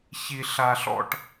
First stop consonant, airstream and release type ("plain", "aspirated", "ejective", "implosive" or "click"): plain